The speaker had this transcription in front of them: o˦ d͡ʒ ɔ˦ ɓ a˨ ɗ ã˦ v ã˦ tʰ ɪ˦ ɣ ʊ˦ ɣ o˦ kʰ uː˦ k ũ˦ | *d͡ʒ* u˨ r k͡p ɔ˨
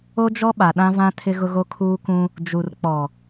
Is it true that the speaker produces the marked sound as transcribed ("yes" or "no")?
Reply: yes